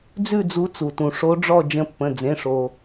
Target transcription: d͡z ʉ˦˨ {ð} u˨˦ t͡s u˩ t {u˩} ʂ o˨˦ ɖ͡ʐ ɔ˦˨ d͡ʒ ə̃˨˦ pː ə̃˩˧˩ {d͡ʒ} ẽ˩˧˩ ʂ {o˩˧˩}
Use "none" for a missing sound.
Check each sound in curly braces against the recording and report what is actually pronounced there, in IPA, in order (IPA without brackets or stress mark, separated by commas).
d͡z, ũ˩, d͡z, o˩